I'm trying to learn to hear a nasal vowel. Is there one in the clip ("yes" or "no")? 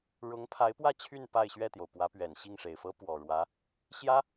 no